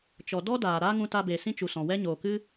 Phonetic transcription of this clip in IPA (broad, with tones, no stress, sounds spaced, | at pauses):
t͡ʃ ɔ˨ d ɔ˦ d aː˨ ɾ aː˦ ŋ ũ˧ t a˧ b e˨ s ĩ˦ t͡ʃ u˨ s ɔ̃˨ w ɛ˦ ɲ oː˨ k ɨ˦